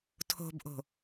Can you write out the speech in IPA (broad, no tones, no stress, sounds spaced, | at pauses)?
tʰ o̤ b ʔ o̤